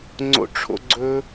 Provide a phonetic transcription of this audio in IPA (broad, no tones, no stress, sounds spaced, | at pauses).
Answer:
ŋ͡ǀ o̰ ʈ͡ʂʰ o̰ ɡ͡ǀ ɵ